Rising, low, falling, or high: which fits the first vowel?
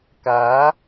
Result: rising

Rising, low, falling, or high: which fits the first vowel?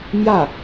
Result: falling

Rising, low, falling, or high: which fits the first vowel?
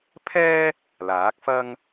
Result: high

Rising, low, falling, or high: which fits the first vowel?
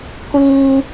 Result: high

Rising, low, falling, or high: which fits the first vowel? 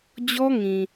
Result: high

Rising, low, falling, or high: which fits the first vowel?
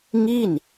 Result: falling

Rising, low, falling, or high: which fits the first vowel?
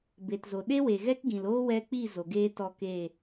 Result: low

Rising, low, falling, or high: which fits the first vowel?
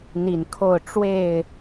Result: low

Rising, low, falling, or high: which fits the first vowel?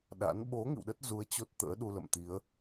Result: rising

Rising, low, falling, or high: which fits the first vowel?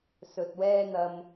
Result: low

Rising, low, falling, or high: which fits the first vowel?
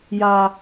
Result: low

